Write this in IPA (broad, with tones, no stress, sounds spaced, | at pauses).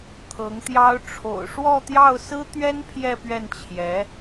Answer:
t̪ʰ ɤ˧˥ ŋ t̪ j ɑ˥ ʊ̯ ʈ͡ʂʰ o̰˨˩ ʊ̯ ʂ w ɔ˥˧ t̪ j ɑ˥˩ ʊ̯ s ɹ̩˥ t̪ ɥ ɛ˥ n pʰ j ɛ˥˧ p ɥ ɛ˥˩ n t͡ɕʰ j ɛ˧˥